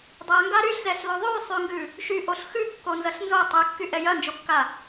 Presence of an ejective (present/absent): absent